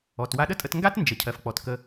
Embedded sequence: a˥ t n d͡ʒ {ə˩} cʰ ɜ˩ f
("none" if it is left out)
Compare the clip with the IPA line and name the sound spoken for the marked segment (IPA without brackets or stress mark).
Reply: ə˩